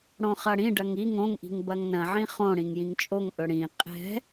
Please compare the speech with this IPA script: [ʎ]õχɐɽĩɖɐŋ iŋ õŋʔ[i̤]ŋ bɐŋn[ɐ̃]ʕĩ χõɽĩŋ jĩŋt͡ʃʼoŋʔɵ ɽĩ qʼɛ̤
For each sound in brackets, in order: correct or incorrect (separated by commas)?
incorrect, correct, correct